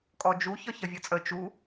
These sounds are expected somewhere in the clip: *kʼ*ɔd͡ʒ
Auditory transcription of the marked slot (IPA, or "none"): kʼ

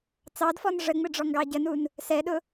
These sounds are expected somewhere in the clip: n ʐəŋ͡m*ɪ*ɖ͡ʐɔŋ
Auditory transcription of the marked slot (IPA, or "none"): ɪ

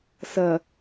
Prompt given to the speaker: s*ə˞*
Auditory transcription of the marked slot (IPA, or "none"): ɐ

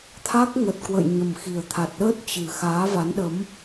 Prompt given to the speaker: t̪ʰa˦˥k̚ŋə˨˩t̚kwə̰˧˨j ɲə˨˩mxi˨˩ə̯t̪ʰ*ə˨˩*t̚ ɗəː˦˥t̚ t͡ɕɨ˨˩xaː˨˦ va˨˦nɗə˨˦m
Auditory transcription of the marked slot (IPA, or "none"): a˨˩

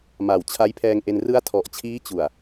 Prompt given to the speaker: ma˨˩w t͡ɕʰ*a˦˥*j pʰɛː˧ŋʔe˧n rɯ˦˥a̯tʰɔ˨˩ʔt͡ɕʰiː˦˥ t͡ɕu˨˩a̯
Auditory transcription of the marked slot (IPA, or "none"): a˦˥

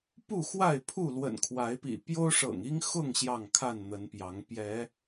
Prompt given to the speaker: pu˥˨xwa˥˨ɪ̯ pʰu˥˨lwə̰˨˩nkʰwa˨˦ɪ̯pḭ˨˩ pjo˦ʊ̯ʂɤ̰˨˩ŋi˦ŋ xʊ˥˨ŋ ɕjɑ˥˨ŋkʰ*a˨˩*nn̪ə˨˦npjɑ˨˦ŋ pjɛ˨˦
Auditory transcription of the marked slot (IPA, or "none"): a˥˨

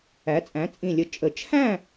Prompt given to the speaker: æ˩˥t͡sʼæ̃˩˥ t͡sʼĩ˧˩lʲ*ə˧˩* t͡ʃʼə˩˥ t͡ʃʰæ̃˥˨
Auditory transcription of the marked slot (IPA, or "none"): ə˧˩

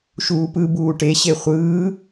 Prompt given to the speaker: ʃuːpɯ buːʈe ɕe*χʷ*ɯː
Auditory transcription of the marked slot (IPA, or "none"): χʷ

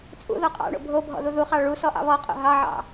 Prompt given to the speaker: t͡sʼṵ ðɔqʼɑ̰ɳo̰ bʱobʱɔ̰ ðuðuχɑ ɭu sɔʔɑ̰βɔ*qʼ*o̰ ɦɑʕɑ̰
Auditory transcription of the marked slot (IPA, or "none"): qʼ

